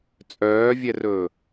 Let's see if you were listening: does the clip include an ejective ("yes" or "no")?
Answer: yes